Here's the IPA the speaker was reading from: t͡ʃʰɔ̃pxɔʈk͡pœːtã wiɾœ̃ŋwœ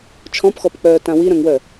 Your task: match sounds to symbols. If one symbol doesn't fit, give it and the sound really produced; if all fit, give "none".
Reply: ʈ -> p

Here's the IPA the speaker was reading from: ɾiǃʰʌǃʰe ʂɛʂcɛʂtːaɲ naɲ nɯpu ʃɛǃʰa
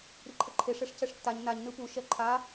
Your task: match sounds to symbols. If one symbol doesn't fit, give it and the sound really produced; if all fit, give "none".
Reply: none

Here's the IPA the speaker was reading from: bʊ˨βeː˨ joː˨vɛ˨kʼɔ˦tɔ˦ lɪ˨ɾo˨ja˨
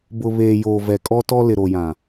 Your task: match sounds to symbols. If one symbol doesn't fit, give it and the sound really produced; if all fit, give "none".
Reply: a˨ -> ã˨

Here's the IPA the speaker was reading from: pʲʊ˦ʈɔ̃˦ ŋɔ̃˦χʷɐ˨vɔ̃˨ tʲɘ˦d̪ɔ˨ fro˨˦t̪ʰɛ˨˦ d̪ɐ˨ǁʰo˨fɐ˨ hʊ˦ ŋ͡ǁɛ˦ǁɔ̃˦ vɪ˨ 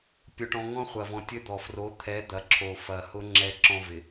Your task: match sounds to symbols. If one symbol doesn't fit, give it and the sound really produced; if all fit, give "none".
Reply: none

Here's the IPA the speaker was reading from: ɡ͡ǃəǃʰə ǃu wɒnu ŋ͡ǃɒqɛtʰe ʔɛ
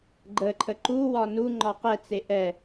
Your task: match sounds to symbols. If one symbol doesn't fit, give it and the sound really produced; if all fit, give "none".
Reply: tʰ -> t͡s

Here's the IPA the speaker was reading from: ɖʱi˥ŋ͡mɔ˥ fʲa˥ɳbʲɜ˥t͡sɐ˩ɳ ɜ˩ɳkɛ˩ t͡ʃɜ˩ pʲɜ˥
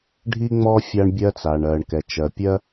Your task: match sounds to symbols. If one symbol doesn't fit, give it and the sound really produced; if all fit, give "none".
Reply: ɐ˩ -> a˩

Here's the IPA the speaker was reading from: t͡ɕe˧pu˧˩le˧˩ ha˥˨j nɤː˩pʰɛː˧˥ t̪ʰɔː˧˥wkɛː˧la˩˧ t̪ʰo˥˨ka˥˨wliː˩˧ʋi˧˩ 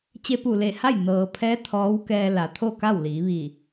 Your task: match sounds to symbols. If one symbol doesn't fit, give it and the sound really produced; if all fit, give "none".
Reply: none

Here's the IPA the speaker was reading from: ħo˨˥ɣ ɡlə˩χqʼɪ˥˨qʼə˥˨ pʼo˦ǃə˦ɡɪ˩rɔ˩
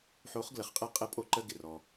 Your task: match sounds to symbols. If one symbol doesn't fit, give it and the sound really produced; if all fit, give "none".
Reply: ɣ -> χ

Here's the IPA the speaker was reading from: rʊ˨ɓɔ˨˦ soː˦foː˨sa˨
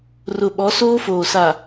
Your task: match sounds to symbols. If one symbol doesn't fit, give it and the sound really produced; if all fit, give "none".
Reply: none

